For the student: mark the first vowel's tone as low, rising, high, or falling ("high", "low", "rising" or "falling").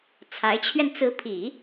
rising